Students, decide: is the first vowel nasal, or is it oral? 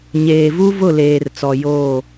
oral